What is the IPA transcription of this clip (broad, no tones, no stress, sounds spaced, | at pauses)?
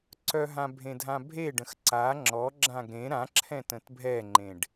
ǀ œ ɦ ã bʱ ẽ dʱ ã bʱ e ɖ ə̃ x ǀ a ŋ͡ǁ ɔ ɡ͡ǁ ã ɡ ɾ ẽ ɾ ã ǁʰ ɛ̃ t ə̃ t bʱ ɛ ŋ͡ǃ ẽ ɖ